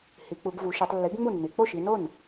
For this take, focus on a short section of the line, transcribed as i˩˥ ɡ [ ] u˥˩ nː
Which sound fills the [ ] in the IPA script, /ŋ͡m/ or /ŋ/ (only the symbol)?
ŋ͡m